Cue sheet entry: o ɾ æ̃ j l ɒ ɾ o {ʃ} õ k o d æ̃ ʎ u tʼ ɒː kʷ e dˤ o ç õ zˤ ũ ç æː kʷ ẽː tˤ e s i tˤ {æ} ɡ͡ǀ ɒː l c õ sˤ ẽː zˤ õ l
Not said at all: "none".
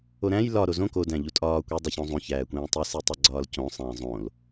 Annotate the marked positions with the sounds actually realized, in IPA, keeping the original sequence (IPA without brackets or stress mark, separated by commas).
z, æ